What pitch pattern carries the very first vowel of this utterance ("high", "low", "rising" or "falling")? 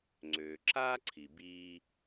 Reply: low